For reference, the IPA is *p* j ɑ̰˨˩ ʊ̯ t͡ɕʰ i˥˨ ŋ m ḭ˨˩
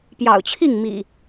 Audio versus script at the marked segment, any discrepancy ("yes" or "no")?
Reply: no